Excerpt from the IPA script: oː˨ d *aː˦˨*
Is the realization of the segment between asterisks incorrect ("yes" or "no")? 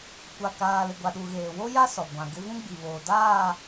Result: no